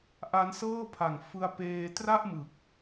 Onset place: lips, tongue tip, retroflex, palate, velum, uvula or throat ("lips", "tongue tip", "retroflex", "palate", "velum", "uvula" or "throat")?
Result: throat